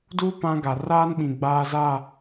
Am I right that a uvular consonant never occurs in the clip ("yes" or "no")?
yes